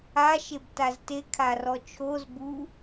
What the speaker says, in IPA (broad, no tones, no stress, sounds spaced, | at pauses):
a ʃ e b t a z t e kʰ a r ɔ t͡ʃʰ o z b u